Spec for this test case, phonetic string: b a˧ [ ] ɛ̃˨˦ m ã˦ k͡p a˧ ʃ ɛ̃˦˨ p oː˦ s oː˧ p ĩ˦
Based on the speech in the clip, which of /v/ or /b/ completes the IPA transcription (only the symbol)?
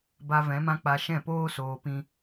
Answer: v